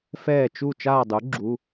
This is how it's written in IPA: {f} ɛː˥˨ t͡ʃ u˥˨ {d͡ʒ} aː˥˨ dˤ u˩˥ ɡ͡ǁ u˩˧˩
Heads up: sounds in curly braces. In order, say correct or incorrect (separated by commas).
correct, incorrect